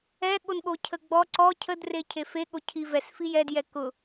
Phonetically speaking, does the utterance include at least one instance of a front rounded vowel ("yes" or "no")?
no